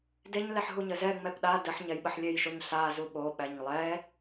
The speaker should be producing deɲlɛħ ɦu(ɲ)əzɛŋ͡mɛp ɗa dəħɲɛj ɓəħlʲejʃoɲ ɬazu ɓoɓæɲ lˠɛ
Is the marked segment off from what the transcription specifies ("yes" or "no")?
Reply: no